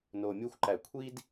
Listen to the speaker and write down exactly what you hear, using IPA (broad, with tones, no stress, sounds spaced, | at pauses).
n o˨ mʲ u˧ xʷ ǃ æ˨ kʷʰ i˦ d